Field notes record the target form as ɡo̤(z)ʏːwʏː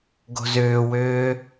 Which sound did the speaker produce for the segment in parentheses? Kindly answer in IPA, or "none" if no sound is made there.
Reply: z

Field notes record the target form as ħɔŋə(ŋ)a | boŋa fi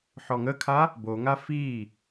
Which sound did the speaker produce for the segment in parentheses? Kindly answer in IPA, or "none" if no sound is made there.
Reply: kʰ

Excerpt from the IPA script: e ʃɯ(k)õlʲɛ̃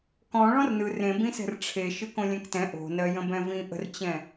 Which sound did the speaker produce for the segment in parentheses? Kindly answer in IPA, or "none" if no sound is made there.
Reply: k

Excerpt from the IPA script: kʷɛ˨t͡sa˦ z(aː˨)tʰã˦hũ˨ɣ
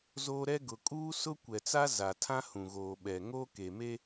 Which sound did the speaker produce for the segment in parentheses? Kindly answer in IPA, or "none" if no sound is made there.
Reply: a˨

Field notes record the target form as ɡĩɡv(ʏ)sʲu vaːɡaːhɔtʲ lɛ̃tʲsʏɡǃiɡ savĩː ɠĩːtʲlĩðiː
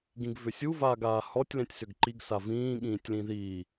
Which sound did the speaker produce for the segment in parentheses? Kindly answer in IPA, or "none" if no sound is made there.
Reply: ʏ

